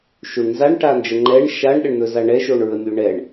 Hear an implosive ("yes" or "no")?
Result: yes